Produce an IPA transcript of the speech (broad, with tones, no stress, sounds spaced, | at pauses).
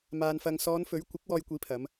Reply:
m aː˨ n f ɐ˨ ŋ s ɔː˨˧ n f ɵ˨˥ ɥ kʷ ɪ˨˥ k̚ w ɔː˧ j kʷ iː˨˥ pʰ ɐ˨˧ m